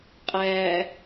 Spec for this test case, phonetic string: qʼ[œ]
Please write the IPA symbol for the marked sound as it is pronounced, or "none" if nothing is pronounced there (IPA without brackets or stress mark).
æ